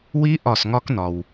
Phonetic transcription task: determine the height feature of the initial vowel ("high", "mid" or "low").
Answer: high